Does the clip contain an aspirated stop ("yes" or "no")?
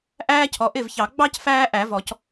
yes